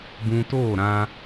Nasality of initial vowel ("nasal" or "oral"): nasal